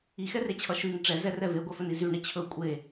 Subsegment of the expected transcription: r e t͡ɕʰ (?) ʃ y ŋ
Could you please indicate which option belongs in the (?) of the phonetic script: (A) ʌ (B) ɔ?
A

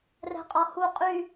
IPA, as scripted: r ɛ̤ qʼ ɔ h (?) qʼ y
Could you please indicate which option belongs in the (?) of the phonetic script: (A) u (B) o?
A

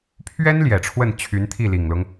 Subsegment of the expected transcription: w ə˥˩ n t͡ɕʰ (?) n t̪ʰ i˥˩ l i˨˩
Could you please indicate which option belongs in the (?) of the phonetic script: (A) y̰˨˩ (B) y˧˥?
B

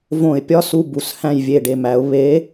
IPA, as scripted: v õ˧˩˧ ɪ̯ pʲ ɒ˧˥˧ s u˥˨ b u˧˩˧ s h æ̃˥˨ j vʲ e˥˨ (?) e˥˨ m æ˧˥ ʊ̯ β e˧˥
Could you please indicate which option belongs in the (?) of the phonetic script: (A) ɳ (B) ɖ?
B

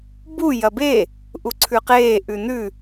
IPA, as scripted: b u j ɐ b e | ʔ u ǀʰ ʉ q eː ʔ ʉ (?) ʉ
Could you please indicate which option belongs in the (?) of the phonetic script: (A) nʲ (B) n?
B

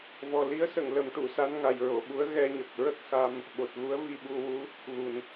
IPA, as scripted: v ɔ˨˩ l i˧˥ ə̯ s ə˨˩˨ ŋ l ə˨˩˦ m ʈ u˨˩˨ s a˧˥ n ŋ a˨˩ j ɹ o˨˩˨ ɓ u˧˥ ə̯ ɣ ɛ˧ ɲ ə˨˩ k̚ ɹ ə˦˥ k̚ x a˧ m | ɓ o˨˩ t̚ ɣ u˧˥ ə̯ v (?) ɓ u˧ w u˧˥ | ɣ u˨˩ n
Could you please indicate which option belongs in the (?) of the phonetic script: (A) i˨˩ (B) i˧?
B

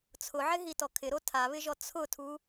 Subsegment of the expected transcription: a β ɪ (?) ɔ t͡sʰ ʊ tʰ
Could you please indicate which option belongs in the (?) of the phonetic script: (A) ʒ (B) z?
A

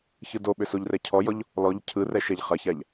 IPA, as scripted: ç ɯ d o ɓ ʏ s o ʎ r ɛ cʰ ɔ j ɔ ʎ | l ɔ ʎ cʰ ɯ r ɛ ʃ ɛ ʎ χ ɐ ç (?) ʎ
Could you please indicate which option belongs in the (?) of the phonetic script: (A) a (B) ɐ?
A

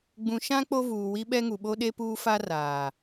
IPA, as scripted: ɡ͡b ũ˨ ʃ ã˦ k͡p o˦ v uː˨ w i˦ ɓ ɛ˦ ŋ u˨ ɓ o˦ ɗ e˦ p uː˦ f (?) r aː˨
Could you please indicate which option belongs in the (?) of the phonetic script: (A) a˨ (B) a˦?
B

